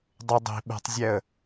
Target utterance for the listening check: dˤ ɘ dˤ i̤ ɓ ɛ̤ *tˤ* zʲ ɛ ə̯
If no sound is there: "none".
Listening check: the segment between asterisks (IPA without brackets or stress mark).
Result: tˤ